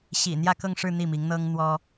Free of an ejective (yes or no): yes